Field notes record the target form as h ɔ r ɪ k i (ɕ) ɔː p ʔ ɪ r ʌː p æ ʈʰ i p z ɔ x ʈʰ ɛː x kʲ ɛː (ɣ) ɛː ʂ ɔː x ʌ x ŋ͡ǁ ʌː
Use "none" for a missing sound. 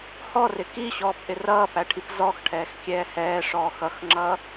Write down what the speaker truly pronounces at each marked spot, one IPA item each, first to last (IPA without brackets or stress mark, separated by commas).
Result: ɕ, h